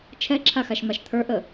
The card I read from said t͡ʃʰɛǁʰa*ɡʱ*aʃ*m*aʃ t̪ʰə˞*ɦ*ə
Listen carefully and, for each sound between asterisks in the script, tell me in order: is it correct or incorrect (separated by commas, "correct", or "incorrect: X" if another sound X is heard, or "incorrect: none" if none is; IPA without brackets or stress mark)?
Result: incorrect: x, correct, incorrect: ʔ